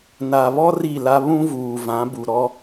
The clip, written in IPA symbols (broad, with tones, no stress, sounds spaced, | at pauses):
n a˨ β ɔ˦ r i˦˨ l a˦ β ũ˦ v uː˨ v ã˨˦ b u˨ ɾ ɔ˦